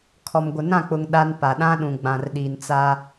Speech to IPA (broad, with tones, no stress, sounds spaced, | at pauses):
kʰ ɔ˨ m ɡʷ ɪ˨ n ã˦˨ k͡p ʊ˨ ŋ ɗ a˦ n p a˨ ɗ ã˦ ɗ ũ˨ ɡ͡b ã˨ r ɗ i˨ n t͡s a˦